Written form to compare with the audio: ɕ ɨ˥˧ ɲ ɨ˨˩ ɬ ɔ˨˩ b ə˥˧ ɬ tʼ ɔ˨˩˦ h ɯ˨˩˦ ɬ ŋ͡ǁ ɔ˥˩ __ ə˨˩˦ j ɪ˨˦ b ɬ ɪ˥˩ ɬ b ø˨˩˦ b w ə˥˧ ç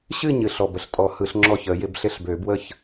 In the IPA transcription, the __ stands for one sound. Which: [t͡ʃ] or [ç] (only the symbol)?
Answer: ç